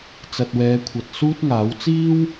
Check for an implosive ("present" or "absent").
absent